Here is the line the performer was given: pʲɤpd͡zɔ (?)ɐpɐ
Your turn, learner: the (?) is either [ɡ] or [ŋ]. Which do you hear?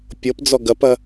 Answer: ɡ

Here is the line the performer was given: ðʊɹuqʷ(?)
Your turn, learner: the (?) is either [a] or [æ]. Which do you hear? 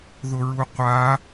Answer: a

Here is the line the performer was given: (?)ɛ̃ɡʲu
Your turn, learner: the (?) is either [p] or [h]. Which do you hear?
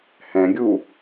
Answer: h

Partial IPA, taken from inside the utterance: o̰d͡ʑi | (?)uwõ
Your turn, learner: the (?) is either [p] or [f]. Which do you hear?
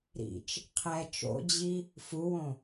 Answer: f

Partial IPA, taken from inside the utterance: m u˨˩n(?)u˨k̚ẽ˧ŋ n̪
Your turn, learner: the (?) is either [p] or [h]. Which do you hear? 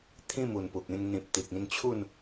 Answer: p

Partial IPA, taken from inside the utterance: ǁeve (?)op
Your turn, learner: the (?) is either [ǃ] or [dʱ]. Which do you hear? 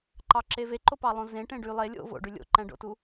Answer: ǃ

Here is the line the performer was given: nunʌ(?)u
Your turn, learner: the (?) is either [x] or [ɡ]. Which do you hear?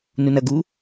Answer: ɡ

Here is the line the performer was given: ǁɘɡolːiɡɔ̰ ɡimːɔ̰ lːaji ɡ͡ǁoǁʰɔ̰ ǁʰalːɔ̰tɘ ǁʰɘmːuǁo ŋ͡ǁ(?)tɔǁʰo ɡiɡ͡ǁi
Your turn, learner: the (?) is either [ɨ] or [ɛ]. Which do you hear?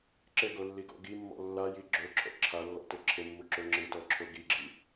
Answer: ɨ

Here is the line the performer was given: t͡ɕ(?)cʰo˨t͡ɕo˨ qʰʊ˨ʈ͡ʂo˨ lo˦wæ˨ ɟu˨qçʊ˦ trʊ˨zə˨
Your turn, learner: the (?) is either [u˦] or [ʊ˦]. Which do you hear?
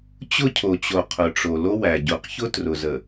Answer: ʊ˦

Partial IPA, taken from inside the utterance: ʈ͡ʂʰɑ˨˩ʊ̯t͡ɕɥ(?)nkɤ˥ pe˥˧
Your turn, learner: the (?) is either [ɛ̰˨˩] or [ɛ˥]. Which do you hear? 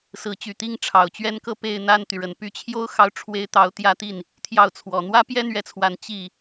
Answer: ɛ˥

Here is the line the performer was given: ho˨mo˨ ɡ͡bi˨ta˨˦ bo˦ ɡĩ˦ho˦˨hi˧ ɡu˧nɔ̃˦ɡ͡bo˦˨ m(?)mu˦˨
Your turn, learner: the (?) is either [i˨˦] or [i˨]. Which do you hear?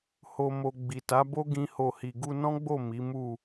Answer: i˨˦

